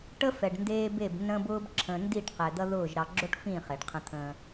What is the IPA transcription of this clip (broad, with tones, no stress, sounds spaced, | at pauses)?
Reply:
ʈ ə˦ f ɛ˨ ɖ n d eː˦ b e˦˨ b n ə̃ː˦ b ʊː˦ b ǁʰ ə̃ː˨ n d i˦˨ ʈ q ɛ˨ d̪ ʌ˦ ð ʊː˦˨ ʒ ɾ ɑ˨ ɡ͡ǁ o˦ ʈ f ĩ˦˨ χ e˨ ɖ qʰ ə̃˦ t̪ʰ ə̃ː˦